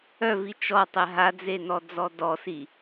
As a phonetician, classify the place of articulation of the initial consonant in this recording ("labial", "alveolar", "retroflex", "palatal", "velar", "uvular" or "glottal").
labial